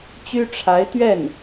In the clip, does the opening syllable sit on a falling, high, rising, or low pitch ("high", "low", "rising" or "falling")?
high